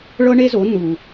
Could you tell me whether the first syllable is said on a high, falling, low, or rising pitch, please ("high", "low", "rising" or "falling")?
high